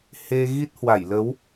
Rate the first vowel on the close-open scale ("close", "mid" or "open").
mid